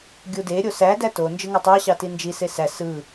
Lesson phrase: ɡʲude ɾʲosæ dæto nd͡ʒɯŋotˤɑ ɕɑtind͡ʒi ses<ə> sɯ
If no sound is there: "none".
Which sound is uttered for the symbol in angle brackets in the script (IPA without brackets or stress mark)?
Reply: æ